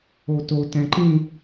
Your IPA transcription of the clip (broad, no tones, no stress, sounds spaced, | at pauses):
o t o t ɛ̃ ǃ ĩ